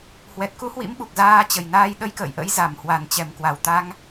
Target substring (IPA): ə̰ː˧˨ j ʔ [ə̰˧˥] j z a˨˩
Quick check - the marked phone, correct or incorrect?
correct